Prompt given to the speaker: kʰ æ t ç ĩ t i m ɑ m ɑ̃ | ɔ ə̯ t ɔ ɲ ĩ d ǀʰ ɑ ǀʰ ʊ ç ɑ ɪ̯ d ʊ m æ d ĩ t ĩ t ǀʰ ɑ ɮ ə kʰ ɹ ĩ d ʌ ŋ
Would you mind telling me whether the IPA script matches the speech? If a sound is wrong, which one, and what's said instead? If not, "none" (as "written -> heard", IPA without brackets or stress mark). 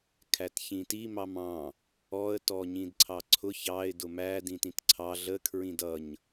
ŋ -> ɲ